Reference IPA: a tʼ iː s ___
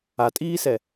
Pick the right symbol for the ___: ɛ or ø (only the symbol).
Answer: ɛ